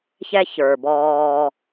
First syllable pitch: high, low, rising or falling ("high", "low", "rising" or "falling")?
high